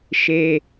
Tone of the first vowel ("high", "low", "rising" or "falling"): high